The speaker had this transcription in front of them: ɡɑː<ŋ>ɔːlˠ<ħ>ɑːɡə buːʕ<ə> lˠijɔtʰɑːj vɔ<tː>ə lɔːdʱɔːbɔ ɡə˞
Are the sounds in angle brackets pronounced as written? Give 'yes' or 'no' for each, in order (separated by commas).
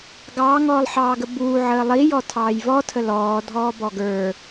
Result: yes, yes, no, no